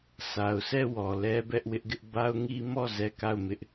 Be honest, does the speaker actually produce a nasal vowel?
no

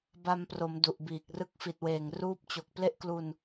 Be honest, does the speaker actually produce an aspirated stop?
no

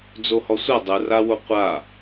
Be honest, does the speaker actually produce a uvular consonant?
yes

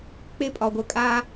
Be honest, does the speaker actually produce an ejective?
yes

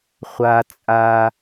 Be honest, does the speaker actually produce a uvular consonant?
yes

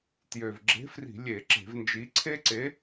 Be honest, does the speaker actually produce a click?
yes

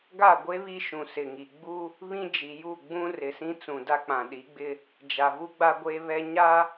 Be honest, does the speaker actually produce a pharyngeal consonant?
no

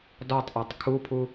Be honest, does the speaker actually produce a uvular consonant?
no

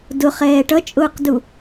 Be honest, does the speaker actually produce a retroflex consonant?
yes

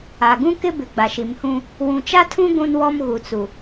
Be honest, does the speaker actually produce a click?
no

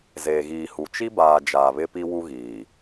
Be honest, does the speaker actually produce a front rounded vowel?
no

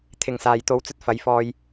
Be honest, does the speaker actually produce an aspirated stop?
yes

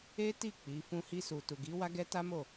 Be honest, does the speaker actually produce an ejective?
no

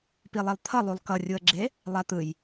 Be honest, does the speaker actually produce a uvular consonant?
no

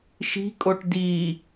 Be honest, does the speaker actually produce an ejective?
yes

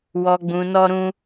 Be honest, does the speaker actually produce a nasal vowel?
yes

